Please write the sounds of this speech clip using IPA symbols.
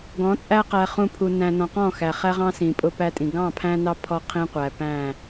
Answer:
ɡ ɔ̃˨˦ t͡sʼ æ˦ q æ˨ χ ũ˨ pʰ u˨ n æ̃˨ n ɔ̃˨ q ɔ̃˦˨ x æ˨ χ æ˦ ʁ ɑ̃˦ s ĩ˨ pʼ ʊ˦ p æ˦ tʼ ĩ˨ ɡ ɑ̃˦˨ pʰ æ̃˦ n ɑ˦ pʰ ɔ˦ qʰ ĩ˦ qʷ æ˨ p æ̃˦˨

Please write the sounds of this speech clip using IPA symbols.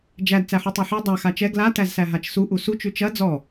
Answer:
d͡ʒ æ d t͡s æ ħ u tˤ æ ħ ʉ dˤ a x a t͡ʃ ɛ ɡ l a t æ z s æ ɦ a t͡ʃ s u ʔ u s u t͡ʃ ʉ t͡ʃ ɐ d͡z ɔ

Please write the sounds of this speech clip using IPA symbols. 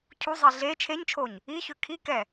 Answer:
cʰ u zˤ i ɮ e t͡ʃʰ e ɲ t͡ʃʰ o ɲ | i ç ø kʰ i k ɛ

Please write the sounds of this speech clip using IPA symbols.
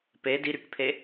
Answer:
p e d i ɾ y k pʰ e

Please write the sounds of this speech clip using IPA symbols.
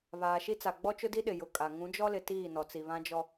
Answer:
β aː˨ ʃ i˦ t͡s a˨ ɡ͡b ɔ˦ t͡ʃ ʊ˦ d i˦ ɗ ɪ˨ j ʊ˨ kʼ a˨ ŋ ũ˨˦ d͡ʒ ɔ˦ l ɪ˨ t iː˦˨ n ɔ˨ t͡s i˨ β ã˦ d͡ʒ ɔ˦

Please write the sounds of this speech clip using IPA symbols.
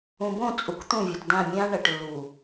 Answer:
ũ˨ b õ˦˨ t͡sʼ u˨ k t̪ ũ˦˨ vʲ ɵ˨ t d ã˦˨ mʲ ã˦ ɳ ɐ˨ ʈ lː u˨

